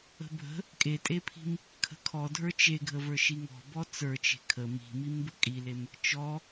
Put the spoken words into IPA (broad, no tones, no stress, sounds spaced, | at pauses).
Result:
ə̤ bʱ ə̤ | kʼ e tʼ e pʰ i̤ m | kʰ ə̤ kʰ ɔ dʱ ə˞ t͡ʃ e ɡʱ ə v ə˞ ʃ i ŋ ɔ̤ b ɔ t͡s ə˞ t͡ʃ e̤ kʰ ə m i̤ m i m b ə kʼ i l e m | t͡ʃ ɔ